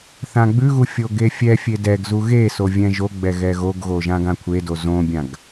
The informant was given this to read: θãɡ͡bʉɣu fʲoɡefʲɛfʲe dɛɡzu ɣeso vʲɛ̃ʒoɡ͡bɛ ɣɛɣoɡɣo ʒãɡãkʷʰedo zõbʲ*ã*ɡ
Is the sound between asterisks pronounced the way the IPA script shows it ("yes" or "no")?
yes